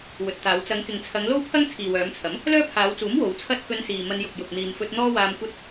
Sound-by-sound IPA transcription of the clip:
wɵ˨t̚t̪aː˨˧w t͡sɐ˨˧ŋkɪ˨ŋt͡sʰɐ˨˧ŋ lo˥wpʰɐ˥ŋ t͡sʰiː˨wœː˨˧mt͡sʰɐ˨˥m | lœː˥pʰaː˨˧wt͡suː˨˥m wo˨˧wt͡sʰɐ˥t̚ kɵ˧nsiː˨ mɐ˧njʊ˨k̚ jʊ˨k̚n̪iː˨mfɵ˧t̚ n̪ɔː˥waː˧mkʷɐ˥t̚

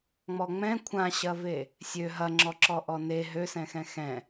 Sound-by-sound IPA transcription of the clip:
ŋ͡mɔŋ͡mɛ̃ kʷʰãɕɐve | sʲø ɦɐŋ͡ǁɔǁɔ ʔɔne ɦøsɛ̃xɛ̃ xɛ̃

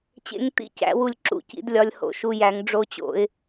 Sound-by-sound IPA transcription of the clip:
t͡ɕḛ˧˥ŋ t̪ḭ˧˥˧c æ̰˧˩˧wu˧˩lʲǁṵ˧˩cḭ˧˩˧d lʲɒ˧lʲho̰˧˩ʃu˧jæ˧˩˧ŋ ɖ͡ʐo˧t͡ɕo̰˧˩˧ɪ̯

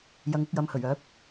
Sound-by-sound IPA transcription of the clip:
jɐ˨˧ŋʊ˧k̚jɐ˨m hɵ˨˩ɥœː˨˥p̚

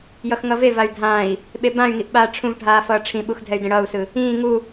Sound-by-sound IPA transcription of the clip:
jʌxŋʌvevay̯ dʱãi̯ | ɓebãy̯ŋiʔ ɓaːʈ͡ʂʰũvɖʱaː fʌːʈ͡ʂʰĩɓux dʱɛy̯dẽɽʌːu̯sɯ | ĩː ŋu

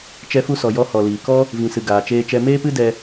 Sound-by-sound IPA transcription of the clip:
t͡ʃɛ˧fu˧sɔ˨ jɔ˧hɔ˨liː˨kɔ˦ | vĩ˨sɨ˨ ɡaː˨t͡ʃeː˧t͡ʃɛ˧ meː˦pɨ˦ dɛ˧

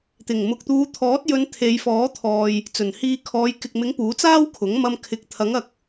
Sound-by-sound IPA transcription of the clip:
t̪ɪ˨˩ŋmʊ˨k̚t̪uː˨˧ t̪ʰɔː˨˥t̚ jɵ˧n t̪ʰe˨˧jfɔː˨˥t̪ʰɔː˨j | t͡sɵ˨˩nhiː˧ kʰɔː˨˧jkɪ˨k̚mɪ˨˥ŋ puː˨˥t͡saː˥wkʰʊ˨˥ŋmɐ˧m kʰɪ˨˥k̚t̪ʰɐ˨˥ŋɐ˨k̚

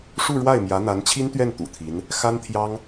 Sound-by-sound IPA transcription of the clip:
ʂu˥˧ɻwa˥˩ɪ̯ mjä˧˥n̪a˧˥nt͡ɕʰi˥nt̪ɥɛ˥˩n t̪ṵ˨˩t̪ʰi˧˥n | xa˥nt̪ʰjɑ˥ŋ

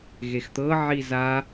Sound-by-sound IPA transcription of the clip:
ɣext̪ɤ ʕiza

